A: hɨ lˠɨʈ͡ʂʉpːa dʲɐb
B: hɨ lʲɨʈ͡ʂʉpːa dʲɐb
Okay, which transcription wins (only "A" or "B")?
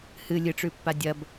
B